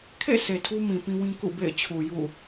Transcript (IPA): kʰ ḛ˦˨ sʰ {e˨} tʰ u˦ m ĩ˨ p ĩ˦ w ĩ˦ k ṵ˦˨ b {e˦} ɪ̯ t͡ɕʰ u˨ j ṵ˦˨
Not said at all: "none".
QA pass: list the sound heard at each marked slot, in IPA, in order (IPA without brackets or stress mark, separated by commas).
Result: e˨, ḛ˦˨